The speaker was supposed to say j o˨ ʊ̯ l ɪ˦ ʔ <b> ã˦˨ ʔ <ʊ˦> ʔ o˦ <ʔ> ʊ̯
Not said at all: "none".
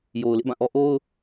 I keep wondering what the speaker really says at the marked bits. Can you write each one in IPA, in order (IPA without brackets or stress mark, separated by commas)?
b, ɔ˦, none